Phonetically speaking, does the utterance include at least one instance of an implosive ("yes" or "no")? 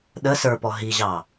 yes